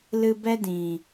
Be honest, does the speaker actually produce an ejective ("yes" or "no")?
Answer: no